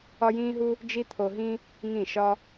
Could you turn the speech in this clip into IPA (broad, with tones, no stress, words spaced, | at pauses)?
ɒ˦jĩː˦ɦu˦ | d͡ʒi˦t̪ʰo˧ɦĩ˦ | ŋĩ˦˨ʃɒ˦